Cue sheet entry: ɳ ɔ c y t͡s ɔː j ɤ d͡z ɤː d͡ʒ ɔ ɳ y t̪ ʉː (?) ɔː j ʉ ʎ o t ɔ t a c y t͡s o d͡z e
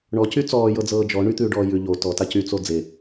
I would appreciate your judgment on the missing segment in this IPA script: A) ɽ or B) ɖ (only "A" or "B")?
B